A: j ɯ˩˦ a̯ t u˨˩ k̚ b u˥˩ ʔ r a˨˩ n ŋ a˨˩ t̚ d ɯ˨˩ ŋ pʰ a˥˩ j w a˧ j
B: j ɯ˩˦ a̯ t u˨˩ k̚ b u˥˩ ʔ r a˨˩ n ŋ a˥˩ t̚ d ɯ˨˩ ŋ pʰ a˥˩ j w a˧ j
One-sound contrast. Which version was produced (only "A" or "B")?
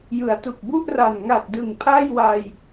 A